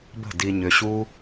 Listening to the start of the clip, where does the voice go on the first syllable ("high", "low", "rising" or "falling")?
falling